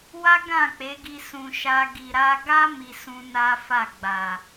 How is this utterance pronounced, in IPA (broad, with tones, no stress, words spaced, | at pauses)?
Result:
wa˦ ɡã˦˨k͡pe˨˦ɡi˧ sũ˨ʃa˧ ɡi˨ɾa˧ɡa˦ mi˧sũ˧ na˦fa˦˨ɡ͡ba˨